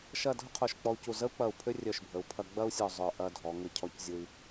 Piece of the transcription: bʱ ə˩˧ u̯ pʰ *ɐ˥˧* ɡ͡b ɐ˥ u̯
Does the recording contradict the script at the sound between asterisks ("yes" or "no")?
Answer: yes